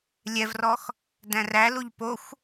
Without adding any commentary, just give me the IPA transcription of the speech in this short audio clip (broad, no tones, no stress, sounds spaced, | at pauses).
lʲ ɛ v r ɔ x | d æ̃ r æ l u ʎ p o xʷ